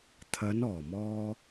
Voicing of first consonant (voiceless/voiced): voiceless